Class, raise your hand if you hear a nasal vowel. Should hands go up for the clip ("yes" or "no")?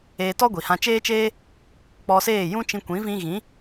yes